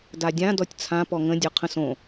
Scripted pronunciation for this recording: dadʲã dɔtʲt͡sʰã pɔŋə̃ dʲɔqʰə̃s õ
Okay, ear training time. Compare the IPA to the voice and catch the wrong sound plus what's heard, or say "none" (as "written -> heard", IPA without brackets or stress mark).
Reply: none